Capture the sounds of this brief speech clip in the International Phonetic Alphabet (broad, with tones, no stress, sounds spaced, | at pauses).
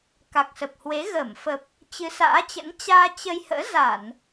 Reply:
k a˨˩ k̚ s ə˨˩ p̚ h w e˨˦ ɣ əː˧˩ m f ə˨˩ p̚ | t͡ɕ ɨ˨˦ s a̰ː˧˥ t͡ɕ ə̰˧˥ n t͡ɕ aː˧ t͡ɕ ə˧ j h ə̰ː˧˥ z a˧˩˨ n